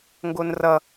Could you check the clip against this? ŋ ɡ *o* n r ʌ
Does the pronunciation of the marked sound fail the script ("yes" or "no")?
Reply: no